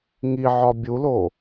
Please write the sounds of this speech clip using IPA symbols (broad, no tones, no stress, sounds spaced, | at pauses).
ŋ i ʕ ɒ bʲ u l o